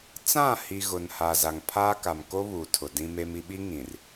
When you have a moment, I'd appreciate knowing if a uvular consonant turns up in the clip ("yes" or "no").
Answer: no